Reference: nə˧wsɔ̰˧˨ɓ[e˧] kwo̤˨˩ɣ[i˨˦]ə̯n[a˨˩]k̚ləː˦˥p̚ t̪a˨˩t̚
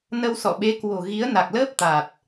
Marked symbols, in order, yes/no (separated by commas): no, yes, yes